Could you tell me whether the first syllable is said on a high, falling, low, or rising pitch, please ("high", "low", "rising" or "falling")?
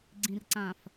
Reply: low